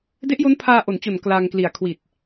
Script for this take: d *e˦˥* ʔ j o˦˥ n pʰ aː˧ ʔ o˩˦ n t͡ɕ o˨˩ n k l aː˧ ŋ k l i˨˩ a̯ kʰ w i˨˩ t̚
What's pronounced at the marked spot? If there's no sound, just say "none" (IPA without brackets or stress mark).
e˦˥